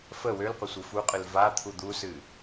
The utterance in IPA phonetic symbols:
fə wølqʷə sʷɨfuqʼɨl vat̪ʰu d̪usɨ

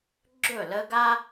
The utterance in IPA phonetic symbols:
ɡ͡ǁɵ˥˩lə˥ ɡa˥

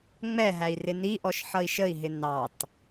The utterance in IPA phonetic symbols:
ŋ͡mɛɦæi̯ rɪniʔɔʃ ħʌi̯ʃəi̯ɦɪ nɑt

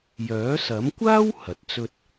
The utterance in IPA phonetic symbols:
jœː˨˥sɐ˨˥mkʷaː˥w hɐ˨t̚t͡sɵ˥t̚

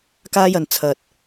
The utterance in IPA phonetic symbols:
kaː˥jɐ˨n t͡sʰɐ˨t̚

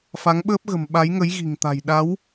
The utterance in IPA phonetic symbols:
fa˨˦ŋɓəː˦˥p̚ɣə̤˨˩m ɓa˨˦jŋə˨˦j ɣi̤˨˩ŋt̪a̤˨˩j ɗa˨˦w

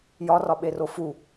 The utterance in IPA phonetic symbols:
jɒrɒɓero fu

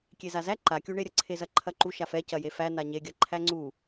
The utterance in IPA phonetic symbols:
kʲezazæ ǃakʲuɳeɾʲɐ ǀʰezɐǃʰɐǃu ʃafɛ cɐjefæ naɲeɡʲɐ ǃʰæŋ͡ǀu

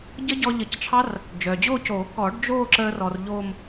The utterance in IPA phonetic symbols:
ɟə˦˥ɟɔ˧ʎə˨˩˦ct͡ʃʰɑ˦˥r | d͡ʒœː˩d͡ʑoː˥˧coː˨˩˦ kɔ˨˩˦ɖ d͡ʒoː˥˧ǁəː˧rɔ˩r ʎoː˥˧m

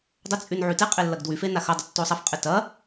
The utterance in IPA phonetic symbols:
dˤɪt͡sʼyn ʕyteqʼe lːɐɡdwyfe naxɐdˤə tːosˤɐfqʼɪ tɐ

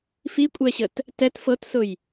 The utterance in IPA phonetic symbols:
fikʷʼɛɕət | tɛt fɤtsʊj

